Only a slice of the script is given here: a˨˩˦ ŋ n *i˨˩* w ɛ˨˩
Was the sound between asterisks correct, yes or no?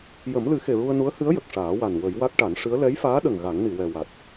no